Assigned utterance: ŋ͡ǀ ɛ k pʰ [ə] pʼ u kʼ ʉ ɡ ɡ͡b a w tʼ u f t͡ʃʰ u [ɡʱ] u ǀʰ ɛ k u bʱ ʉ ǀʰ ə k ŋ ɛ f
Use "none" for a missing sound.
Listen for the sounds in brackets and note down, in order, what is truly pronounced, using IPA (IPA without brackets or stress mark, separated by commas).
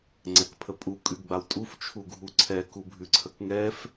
ə, ɡʱ